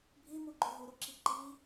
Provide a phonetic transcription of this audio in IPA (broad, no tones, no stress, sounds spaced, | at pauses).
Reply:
bʱ i m u ɡ͡ǃ ø ɦ u ɾ u ǁ i ǃ i